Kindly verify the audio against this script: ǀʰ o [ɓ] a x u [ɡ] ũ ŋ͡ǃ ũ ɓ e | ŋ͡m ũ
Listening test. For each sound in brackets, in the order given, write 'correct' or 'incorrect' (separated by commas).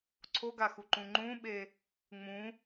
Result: incorrect, incorrect